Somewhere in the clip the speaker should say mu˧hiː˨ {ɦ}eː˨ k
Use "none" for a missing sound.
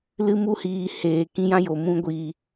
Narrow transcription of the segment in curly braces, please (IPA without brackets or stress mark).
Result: h